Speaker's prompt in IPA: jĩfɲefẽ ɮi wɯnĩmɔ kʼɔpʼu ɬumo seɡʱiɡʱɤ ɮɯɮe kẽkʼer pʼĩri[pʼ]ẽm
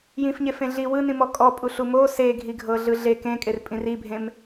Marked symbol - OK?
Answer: no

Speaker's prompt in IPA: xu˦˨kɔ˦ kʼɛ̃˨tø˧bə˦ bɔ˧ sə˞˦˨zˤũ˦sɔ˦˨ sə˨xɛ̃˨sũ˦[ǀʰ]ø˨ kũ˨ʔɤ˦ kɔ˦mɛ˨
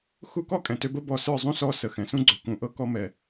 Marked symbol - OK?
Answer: no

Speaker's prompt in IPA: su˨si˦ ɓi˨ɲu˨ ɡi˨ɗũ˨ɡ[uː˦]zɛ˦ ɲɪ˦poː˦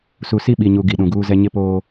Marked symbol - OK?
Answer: yes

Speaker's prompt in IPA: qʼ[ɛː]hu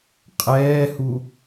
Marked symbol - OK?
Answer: yes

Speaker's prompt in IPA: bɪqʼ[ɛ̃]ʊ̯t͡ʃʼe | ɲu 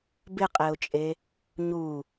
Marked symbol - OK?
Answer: no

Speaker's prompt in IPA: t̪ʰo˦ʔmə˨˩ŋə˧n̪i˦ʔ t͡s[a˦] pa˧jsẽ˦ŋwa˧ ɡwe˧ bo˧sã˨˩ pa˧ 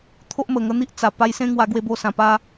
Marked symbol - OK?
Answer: no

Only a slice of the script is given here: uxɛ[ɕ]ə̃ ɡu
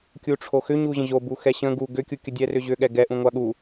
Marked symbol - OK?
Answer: yes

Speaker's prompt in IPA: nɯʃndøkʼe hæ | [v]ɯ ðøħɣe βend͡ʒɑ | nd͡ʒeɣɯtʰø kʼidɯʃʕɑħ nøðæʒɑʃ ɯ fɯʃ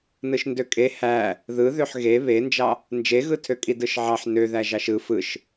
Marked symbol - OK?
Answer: no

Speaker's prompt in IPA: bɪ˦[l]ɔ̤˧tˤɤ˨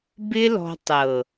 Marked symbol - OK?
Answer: yes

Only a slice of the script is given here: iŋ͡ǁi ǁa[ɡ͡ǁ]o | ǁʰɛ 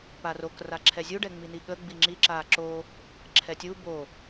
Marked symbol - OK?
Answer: no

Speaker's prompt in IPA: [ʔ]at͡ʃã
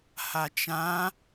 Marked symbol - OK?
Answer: no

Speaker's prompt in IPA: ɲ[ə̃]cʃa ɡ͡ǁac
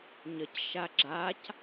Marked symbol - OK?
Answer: no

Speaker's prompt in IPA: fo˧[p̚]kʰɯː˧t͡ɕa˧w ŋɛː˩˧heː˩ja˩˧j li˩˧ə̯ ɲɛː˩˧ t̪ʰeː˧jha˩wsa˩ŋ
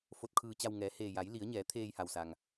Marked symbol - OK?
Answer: no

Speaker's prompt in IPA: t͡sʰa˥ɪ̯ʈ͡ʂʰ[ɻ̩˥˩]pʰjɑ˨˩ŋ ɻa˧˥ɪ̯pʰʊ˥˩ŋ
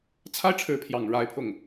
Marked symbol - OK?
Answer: no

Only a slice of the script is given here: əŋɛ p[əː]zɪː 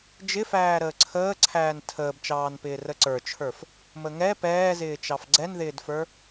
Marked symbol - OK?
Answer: no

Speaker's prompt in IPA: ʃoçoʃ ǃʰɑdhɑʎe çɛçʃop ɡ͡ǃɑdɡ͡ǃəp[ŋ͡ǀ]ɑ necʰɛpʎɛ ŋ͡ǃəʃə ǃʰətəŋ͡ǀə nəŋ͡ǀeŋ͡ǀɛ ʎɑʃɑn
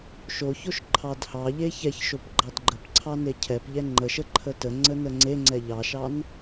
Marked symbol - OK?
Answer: no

